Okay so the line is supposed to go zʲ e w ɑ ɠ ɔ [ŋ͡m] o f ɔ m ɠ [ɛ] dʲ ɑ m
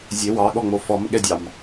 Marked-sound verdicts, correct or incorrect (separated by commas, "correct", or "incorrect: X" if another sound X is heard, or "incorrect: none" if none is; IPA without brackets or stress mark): correct, correct